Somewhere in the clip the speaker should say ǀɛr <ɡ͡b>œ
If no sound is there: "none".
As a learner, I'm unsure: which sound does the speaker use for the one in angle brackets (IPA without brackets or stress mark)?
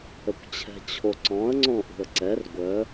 ɡʷ